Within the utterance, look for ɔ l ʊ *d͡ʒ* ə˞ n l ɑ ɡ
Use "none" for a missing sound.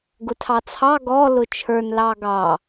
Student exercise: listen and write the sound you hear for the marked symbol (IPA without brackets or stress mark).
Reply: t͡ʃʰ